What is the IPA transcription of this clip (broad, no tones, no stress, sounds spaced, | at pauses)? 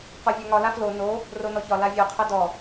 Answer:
q ɔ vʲ a ŋ ɒ l a f l o n o | r o n ɔ ç ɒ l a vʲ ɔ qʰ ɜ d ɔ